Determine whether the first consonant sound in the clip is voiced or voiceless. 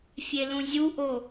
voiceless